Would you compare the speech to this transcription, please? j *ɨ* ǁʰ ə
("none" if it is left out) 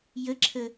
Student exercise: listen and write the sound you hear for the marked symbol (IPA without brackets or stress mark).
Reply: ə